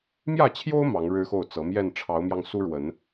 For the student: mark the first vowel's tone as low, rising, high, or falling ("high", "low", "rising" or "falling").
falling